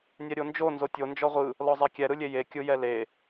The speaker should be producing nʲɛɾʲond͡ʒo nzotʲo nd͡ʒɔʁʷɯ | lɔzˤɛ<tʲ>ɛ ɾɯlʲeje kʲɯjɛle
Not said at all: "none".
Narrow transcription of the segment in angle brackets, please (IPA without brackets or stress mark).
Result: kʲ